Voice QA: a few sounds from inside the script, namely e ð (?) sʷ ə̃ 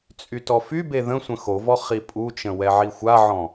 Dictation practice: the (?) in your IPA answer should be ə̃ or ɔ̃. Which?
ə̃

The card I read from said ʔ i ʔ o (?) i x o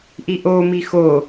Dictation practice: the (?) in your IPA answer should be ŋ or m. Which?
m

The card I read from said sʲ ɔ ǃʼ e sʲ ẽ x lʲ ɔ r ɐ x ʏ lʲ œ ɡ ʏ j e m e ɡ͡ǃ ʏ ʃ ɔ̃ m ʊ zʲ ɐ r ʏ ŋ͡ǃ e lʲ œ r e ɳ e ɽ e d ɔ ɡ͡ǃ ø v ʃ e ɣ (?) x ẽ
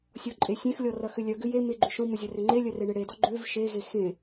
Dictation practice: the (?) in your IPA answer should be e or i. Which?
e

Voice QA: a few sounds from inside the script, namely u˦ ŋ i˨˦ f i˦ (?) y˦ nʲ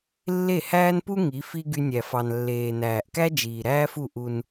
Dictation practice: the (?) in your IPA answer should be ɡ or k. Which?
ɡ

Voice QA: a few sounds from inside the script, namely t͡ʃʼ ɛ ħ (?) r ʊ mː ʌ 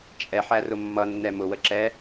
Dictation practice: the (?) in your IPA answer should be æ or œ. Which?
æ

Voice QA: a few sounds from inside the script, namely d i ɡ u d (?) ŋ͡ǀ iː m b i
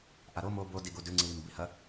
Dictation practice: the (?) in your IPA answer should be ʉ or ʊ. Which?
ʉ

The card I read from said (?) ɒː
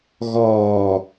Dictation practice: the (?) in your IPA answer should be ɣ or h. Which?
ɣ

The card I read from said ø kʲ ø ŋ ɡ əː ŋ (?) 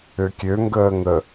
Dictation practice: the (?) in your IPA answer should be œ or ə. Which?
ə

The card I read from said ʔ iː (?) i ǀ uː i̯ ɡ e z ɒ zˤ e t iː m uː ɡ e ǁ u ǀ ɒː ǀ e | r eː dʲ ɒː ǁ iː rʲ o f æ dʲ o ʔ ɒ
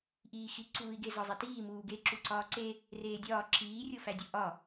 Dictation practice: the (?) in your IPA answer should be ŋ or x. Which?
x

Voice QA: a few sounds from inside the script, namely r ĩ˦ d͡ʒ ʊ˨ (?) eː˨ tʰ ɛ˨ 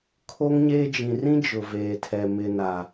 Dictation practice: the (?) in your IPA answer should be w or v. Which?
v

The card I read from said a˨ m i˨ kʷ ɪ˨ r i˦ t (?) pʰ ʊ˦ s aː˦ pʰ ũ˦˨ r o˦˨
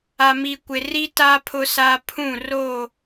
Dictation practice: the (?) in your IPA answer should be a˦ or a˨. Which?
a˦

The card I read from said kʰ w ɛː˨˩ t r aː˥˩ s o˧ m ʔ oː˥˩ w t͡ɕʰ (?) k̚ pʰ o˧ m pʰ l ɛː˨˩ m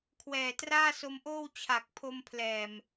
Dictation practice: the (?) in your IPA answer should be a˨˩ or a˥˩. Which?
a˨˩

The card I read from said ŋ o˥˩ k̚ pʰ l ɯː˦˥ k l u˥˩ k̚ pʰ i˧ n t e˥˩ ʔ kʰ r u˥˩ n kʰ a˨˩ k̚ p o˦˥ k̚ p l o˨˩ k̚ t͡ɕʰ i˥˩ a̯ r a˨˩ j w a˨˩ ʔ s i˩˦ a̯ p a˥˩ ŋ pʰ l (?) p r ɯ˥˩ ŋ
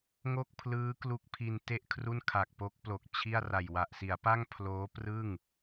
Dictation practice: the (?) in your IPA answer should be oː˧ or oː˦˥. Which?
oː˦˥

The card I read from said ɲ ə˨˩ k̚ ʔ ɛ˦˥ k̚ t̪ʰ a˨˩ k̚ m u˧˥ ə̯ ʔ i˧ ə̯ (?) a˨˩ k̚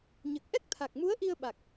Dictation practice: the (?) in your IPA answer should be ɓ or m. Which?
ɓ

